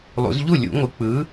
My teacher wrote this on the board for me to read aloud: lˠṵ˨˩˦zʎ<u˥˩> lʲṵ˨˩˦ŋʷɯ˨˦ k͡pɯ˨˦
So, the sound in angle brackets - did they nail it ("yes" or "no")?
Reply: yes